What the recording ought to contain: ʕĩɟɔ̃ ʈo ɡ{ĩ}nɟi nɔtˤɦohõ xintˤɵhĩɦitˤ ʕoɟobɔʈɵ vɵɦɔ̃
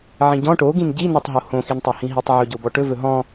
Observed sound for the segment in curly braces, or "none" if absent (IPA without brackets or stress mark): ĩ